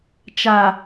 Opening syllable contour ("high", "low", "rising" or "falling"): low